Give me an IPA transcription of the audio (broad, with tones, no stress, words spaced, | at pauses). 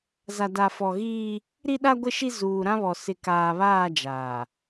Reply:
za˨da˨fɔ˨ ɣiː˦ | ɾi˦ɗa˦ɡʷɪ˦˨ʃi˦ zuː˨ɾã˦βɔ˨ sɪ˨kaː˨βaː˦˨ d͡ʒaː˨